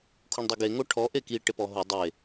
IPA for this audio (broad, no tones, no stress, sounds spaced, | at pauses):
kʰ u ɳ dˤ o ɡ e ŋ o ʈʰ ɔ ʔ e k i ʈ e p ɔ ɦ ʊ dˤ e